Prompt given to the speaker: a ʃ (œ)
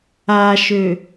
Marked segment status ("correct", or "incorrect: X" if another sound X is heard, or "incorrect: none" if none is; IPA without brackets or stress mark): incorrect: ø